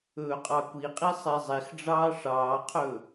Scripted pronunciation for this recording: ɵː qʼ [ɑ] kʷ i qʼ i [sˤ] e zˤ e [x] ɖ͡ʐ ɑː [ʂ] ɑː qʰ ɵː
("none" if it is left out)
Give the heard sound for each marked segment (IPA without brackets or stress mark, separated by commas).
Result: ɑ, sˤ, x, ʂ